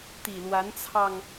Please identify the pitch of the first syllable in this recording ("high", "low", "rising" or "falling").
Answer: low